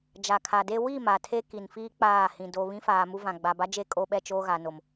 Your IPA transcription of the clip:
d͡ʒa˨kʰa˨de˦ wi˦˨ ma˨tʰe˦ki˨nfiː˦ k͡paː˦˨hĩ˨ do˨ βĩ˦faː˨mu˦vã˨ ɡ͡ba˨ba˦d͡ʒe˦˨ kʼo˦ɓɛ˦t͡ʃoː˦ɣa˨ no˨m

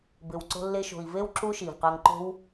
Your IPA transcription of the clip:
bɪ˨w ǀo̤˧lːe˧ʃo̤˨i̯ve˦w ǁu˦ ʃi˨vqa˧ŋǃo̤˦w

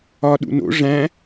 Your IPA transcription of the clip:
ɒ ɗṵno̰ ʐæ̃

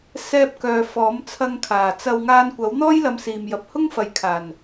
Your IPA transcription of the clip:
sɛː˥p̚kœː˧ fɔː˨˥mt͡sʰɐ˧ŋkʰaː˨˩t͡sɐ˧w ŋaː˧nkʷɐ˨˥wn̪ɔː˥j lɐ˧msiː˨m jɐ˨p̚hʊ˥ŋfɐ˨jkʰaː˨˩n

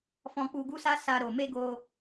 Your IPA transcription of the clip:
fɔ̃˧k͡pu˧ɡu˦sa˦ sa˧ ɾo˨me˧ ɡo˧

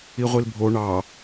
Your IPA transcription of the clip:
iʁʷilbʱo ɳɑ

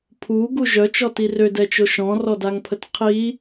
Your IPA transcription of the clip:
pʰuɡu ʒœt͡ʃɔti rødɛt͡ʃo ʃɔ̃rɔdaŋpʰət qʰi

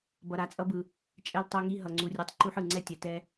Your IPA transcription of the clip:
bʌ˧ɾa˧t͡sʼʌ˦bɯ˧ | t͡ʃʼɛ˧ltˤo˧ŋi˧ ɦʌ˧ŋ͡ǀu˧rʲu˧tˤ ǃu˧ħ ɯ˨ ŋ͡ǀɛ˦tʲɛ˨˦tɛ˦

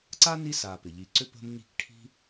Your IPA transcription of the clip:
ǀa˥ni˦sa˨ pɪ˩ʎi˨ǀʏ˦ pə̤˦m ɲi̤˦k ʈʰi̤˥

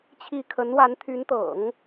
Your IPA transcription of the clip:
t͡ɕʰi˥˩ kʰə˧˥nwa˧˥nt̪ʰy˧˥nt̪ɤ̰˨˩˦ŋ

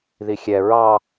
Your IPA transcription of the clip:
ðixʲɛ ɹɑ

